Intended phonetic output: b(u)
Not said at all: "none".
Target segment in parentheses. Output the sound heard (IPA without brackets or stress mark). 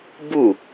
u